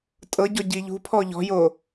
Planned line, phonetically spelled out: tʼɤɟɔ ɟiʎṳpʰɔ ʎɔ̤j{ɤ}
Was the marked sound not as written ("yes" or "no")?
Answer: yes